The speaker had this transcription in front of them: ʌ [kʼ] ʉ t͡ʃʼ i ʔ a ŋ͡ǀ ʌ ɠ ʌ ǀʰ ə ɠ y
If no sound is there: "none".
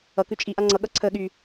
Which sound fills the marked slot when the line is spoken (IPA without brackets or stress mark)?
k